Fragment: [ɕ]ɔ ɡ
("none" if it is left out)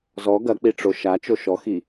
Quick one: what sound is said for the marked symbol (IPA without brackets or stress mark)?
z